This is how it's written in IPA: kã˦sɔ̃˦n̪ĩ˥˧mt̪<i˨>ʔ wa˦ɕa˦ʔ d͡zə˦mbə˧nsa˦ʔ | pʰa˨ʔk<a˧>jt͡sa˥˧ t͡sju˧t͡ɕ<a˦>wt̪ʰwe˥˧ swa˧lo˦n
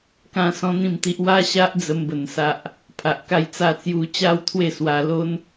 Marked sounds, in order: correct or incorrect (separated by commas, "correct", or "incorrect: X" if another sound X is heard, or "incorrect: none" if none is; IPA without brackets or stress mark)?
incorrect: i˦, incorrect: a˥˧, correct